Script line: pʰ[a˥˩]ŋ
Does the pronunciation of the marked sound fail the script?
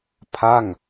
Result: no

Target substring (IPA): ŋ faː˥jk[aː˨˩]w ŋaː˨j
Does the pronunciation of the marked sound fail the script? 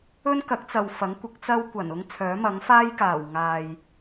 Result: no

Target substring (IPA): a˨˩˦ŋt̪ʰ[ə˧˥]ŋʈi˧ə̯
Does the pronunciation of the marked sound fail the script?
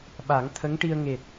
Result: no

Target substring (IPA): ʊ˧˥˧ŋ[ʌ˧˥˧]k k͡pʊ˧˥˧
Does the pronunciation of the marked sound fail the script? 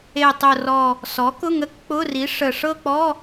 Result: yes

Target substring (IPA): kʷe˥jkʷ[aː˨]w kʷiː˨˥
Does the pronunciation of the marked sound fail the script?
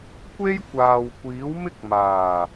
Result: no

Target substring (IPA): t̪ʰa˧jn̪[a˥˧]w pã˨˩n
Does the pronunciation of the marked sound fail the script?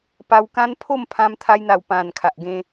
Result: yes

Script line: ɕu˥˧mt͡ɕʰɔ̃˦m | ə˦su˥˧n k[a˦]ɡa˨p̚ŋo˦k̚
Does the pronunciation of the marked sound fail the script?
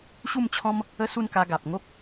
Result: yes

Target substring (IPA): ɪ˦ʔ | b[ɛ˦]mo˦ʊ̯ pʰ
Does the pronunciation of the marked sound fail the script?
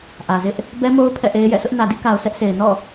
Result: no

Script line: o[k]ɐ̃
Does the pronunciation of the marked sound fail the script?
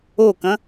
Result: no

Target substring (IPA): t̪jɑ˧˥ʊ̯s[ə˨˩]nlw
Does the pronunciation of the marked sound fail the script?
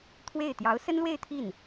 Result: yes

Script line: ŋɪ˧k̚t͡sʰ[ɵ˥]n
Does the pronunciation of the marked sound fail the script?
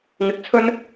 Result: no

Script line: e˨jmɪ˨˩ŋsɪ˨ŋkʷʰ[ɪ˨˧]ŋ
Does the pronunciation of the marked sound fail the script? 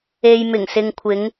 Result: no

